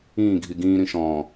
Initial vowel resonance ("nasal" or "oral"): nasal